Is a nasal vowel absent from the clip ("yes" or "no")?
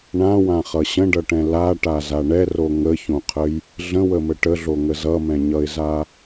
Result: no